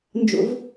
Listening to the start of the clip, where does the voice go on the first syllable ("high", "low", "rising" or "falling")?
high